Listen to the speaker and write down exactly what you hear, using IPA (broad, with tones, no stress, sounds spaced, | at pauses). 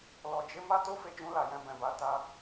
l ɔ˨ d͡ʒ e˧ m a˦ t o˦ f e˧ d͡ʒ ũ˧ l a˨ j ɛ̃˧ b ɛ̃˨ b a˧ t a˧